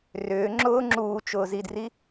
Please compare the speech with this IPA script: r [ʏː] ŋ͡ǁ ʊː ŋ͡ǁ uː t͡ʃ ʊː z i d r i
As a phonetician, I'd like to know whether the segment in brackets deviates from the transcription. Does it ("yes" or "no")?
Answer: no